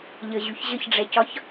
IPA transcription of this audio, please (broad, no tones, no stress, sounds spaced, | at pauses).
ʎ ə ʑ y ç ʑ ə ç ɖ͡ʐ ɛ c ɒ ç